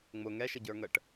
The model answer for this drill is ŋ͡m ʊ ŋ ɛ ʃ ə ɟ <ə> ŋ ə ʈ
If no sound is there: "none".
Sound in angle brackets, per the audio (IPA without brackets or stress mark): ə˞